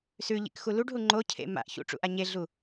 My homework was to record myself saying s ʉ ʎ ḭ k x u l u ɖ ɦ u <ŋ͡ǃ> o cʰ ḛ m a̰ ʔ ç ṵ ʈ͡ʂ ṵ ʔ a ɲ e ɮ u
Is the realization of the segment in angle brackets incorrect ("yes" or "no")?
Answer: no